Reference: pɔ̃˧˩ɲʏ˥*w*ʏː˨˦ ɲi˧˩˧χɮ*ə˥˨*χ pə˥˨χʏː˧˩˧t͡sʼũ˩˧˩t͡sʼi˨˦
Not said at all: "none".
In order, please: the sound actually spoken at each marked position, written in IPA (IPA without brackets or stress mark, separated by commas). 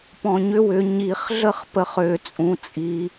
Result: w, ə˥˨